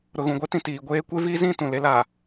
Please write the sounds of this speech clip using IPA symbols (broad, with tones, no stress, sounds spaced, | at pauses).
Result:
ɾ ʊ˨ ɣ ũ˨ ɡʷ ɛ˦ t ĩ˨ t iː˨ ɡʷ eː˦ kʷ e˦ v iː˦ z ĩ˦˨ t ũ˨ l e˦ l aː˨